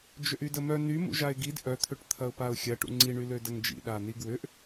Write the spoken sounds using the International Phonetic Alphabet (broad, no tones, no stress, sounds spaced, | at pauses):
d͡ʒ ʏ ʔ y d ə m œ n y m ṵ ʒ a ɪ̯ ɡ i d ʔ œ t̪ʰ ʏ ʈ t̪ʰ ɐ ʊ̯ p a ʊ̯ xʲ ɐ ʈ ṵ ŋ͡ǀ i ɳ y l ø d ɐ ŋ d͡ʒ ḭ ɗ a n i ɡ w ʏ ʔ